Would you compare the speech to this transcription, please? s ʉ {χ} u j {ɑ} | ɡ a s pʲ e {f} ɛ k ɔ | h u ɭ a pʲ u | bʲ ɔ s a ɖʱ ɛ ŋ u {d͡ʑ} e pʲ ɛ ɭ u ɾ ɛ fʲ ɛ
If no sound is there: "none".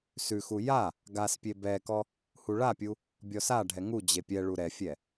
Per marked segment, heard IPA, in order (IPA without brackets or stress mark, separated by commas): x, a, b, d͡ʑ